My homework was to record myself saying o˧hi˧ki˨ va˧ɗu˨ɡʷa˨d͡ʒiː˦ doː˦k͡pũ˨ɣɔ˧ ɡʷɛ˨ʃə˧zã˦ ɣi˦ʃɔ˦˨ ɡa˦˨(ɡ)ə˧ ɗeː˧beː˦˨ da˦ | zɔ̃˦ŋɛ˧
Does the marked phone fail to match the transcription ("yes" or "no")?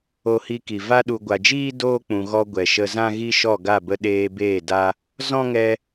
yes